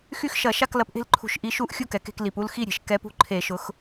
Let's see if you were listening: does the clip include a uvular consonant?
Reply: no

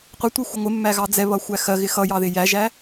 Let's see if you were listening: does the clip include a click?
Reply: no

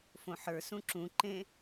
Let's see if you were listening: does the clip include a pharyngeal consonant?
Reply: yes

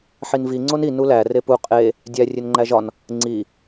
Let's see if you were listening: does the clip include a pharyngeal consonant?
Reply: yes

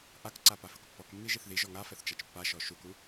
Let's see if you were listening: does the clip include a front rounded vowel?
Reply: no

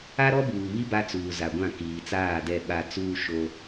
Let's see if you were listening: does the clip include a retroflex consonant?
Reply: no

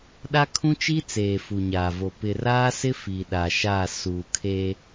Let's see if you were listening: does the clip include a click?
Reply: no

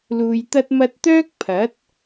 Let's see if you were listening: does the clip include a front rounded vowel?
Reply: yes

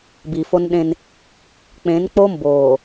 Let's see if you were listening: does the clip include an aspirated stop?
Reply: no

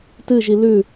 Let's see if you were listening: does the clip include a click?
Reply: no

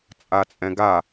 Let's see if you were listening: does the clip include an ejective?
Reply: yes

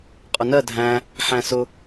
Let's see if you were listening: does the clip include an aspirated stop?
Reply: no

